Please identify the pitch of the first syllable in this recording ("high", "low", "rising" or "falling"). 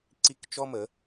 falling